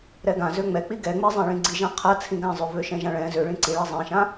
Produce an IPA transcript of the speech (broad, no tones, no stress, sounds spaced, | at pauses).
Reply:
ɾ ɛ ɡ ã z ø ŋ͡m ɛ k͡p i ɡ ɛ ŋ͡m i zˤ ɛ̃ ɭ ĩ ɡ͡ǀ i ʒ ã qʰ a t͡sʰ ĩ ɡ ã zˤ ø v ø ʃ ɛ̃ ʒ ã ɭ ɛ̃ z ø ɭ ĩ ǀ i ɭ ɛ zˤ ɛ̃ ʃ ã